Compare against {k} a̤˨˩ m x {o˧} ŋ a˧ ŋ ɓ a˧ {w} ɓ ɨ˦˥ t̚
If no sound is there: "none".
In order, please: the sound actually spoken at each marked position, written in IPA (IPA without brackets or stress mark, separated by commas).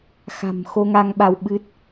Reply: x, o˧, w